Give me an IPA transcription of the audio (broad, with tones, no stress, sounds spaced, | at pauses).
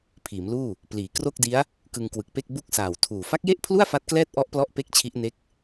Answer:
pʰ iː˩˦ m l uː˥˩ | p l iː˩˦ k r o˥˩ k̚ d i˦˥ a̯ | k ɯ˧ ŋ k w ɯ˨˩ k̚ p e˥˩ k̚ b u˥˩ k̚ s aː˨˩ w tʰ uː˨˩ f a˦˥ k̚ j e˥˩ ʔ pʰ l u˥˩ a̯ f a˦˥ t̚ k l ɛː˥˩ t̚ ʔ ɔ˦˥ ʔ p l ɔ˦˥ ʔ p e˥˩ k̚ t͡ɕʰ i˦˥ ʔ n e˦˥ k̚